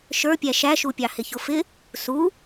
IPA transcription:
ʃ ə˞ pʲ æ ʃ æ ʃ u pʲ ɑ h ɪ ç ʊ f ɪ | s u

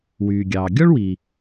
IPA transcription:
w yː˩ ɡʲ ɑː˩ ɡʲ ɔ˥ ɭ w i˩

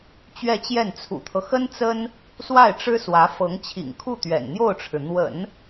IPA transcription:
t͡ɕ ɥ ɛ˥˧ t͡ɕ j ɛ˥˩ n t͡sʰ ṵ˨˩ t̪ʰ ɤ˦ x ə˥ n t͡s ə˥ n | s w a˥˩ ɪ̯ ʈ͡ʂ ɻ̩˥ s w ä˧˥ f ɤ˧˥ ŋ t͡ɕʰ ḭ˨˩ ŋ kʰ u˥˩ t̪ ɥ ɛ̰˨˩ n n̪ j o˥˩ ʊ̯ ʈ͡ʂʰ ɻ̩˩ n̪ w ə̰˨˩˦ n

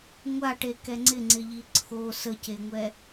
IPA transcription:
ŋʷ a ʈ e k ɛ ŋ͡ǀ ɪ ŋ͡ǀ ɪ ʎ i ǀʰ o s ə c e ŋʷ ɛ

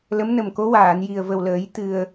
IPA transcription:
l ə˧˥ m n ə˨˩ m k o˧˥ w aː˨˩˨ n j i˨˩ ə̯ v ə˨˩ w l əː˨˩˦ j t̪ ɨ˨˩ ə̯

